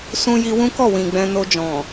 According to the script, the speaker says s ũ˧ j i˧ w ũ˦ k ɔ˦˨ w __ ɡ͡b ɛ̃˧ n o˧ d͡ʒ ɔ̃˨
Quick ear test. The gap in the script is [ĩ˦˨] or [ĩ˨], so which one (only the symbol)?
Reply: ĩ˨